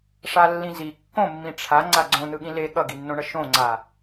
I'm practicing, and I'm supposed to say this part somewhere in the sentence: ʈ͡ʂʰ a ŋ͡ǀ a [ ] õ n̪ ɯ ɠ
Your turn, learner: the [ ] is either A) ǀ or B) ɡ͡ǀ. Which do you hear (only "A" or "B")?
B